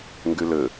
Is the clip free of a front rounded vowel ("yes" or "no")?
no